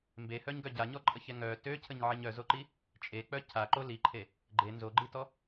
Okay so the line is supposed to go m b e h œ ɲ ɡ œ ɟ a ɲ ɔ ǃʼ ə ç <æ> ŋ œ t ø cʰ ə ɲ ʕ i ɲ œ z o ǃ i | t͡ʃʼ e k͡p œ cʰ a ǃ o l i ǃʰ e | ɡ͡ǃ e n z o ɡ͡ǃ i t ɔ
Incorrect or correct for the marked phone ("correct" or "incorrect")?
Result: incorrect